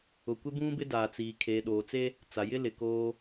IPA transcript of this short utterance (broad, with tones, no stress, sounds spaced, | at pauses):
ʊ˨ kʷ ɪ˦ b ũ˦ b ɪ˦ d aː˨ t͡s iː˨ kʰ eː˨ ɗ oː˨ t͡s e˦ | t͡s a˨ j ɪ˦ l ɪ˨ k oː˦